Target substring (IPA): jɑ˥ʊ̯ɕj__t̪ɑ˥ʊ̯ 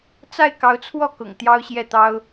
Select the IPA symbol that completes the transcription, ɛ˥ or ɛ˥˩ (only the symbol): ɛ˥˩